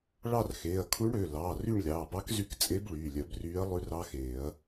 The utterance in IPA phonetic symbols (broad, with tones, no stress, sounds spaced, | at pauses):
ɭ ɑ˦˨ r x eː˩˧˩ ɐ̯ kʰ u˧˥ ɳ ɽ ø˩˧˩ l ɑː˩˧˩ r y˦˨ ɳ lʲ ɑː˩˧˩ b ɑ˧˥ k z y˧˥ k t͡sʼ e˧˥ b ɭ yː˩˧˩ lʲ œ˨˩˦ b r yː˧˥ ɐ̯ lˠ ʉ˧˥ r ɑ˧˥ x eː˨˩˦ ɐ̯